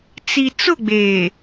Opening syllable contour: low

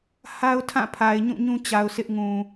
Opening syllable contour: high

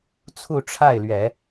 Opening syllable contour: falling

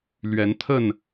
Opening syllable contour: rising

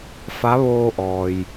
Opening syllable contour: rising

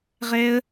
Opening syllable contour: high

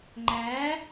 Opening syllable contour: rising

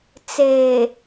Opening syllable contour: low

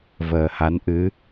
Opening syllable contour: low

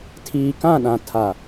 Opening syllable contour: low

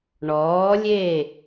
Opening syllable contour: rising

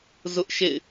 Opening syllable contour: high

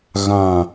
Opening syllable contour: low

